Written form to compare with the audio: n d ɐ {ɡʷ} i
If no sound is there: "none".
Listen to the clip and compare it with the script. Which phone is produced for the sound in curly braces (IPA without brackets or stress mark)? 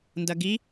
ɡ